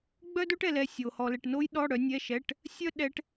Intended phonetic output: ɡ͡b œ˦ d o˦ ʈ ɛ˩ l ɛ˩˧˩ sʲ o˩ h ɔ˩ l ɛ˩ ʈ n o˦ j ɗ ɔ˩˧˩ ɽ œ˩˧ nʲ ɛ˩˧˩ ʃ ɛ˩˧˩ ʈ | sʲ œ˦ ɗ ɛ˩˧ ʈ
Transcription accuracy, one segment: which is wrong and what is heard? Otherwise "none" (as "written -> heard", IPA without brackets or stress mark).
none